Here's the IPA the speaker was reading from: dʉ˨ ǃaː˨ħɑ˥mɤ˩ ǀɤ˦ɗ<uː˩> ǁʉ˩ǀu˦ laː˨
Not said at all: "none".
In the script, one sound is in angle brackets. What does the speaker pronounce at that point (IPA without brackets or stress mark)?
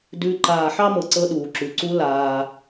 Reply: uː˩